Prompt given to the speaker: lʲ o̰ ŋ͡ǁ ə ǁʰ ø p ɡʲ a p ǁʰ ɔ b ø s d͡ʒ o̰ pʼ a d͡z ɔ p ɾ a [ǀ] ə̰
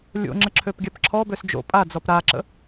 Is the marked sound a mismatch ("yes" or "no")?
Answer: yes